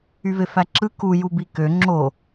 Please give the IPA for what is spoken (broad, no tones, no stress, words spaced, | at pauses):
yvefæǁɯ ku jubikø ŋ͡ǁo